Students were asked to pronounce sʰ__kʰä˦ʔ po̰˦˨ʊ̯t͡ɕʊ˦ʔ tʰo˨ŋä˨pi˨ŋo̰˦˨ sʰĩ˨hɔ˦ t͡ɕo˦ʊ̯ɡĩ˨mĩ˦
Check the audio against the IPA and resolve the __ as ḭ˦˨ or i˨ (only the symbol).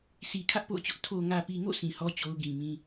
i˨